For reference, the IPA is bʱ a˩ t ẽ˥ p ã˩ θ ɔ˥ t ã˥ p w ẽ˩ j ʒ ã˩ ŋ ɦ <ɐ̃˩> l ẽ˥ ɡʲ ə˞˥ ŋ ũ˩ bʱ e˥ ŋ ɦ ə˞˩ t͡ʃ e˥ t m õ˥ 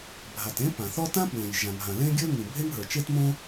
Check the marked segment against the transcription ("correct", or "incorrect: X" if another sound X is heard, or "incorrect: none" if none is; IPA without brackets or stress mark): incorrect: ã˩